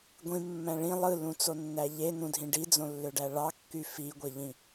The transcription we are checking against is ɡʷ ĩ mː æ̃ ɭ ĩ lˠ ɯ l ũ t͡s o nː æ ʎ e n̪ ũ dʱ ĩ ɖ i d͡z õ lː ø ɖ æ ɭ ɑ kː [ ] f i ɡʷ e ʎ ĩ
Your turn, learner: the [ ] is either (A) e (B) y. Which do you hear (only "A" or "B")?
B